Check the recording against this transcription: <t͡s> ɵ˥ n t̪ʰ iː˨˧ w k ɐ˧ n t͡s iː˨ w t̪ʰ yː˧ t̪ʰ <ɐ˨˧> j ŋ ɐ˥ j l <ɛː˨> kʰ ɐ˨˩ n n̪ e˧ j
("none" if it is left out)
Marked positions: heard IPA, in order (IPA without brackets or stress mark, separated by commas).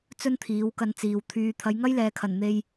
t͡s, ɐ˨˧, ɛː˨